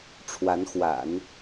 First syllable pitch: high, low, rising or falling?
rising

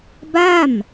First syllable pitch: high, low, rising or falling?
falling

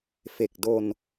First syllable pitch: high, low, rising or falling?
low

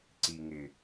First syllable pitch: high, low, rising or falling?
low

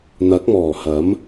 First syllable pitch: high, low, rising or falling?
rising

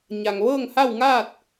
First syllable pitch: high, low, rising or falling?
low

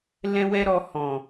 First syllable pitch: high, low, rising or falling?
high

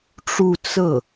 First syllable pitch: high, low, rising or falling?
falling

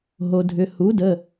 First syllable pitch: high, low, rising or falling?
low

